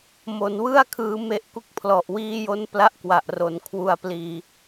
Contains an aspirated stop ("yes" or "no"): yes